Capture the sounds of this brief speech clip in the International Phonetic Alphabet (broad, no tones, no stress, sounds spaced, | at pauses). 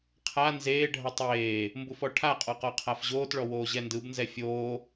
qʰ a n z eː ɖʱ ʌ tˤ eː | m b u f ɔ ʈʰ a qʼ ɔ q ɔ qʰ a f ʑ oː t ɭ ɔ w oː ʑ ɛ n d ɯ b n z ɛ fʲ oː